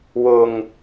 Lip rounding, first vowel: rounded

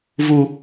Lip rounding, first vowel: rounded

